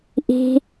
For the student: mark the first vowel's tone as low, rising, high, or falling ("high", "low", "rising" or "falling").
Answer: high